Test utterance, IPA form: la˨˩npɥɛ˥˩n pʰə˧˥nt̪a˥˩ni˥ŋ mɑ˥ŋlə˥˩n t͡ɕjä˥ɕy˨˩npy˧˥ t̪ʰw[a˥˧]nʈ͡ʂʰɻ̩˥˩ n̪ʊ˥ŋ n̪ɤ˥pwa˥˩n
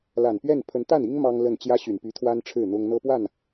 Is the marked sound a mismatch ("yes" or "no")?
yes